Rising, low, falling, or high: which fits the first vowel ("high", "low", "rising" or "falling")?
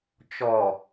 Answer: low